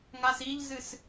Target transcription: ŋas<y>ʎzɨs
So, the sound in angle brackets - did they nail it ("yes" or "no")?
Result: no